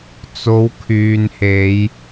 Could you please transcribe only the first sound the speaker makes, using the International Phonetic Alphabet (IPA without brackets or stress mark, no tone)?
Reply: t͡s